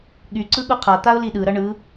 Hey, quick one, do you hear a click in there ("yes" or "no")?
yes